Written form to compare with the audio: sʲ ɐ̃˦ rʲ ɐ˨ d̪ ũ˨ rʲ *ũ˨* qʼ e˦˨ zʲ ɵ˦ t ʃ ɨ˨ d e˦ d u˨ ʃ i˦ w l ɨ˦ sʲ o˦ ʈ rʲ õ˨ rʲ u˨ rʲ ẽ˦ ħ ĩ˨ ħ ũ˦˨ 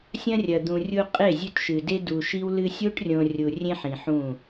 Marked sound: incorrect: u˨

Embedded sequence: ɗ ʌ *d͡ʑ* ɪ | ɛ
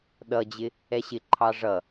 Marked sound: correct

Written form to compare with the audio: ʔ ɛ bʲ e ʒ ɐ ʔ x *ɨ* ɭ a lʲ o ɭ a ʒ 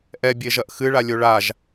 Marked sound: correct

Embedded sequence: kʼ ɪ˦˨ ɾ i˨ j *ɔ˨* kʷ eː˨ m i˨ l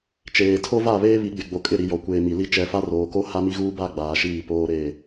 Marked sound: correct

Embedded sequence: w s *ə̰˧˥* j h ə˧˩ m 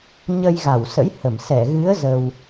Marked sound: correct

